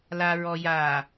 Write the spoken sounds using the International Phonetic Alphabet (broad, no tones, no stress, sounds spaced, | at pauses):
l a ɹ ɔ j a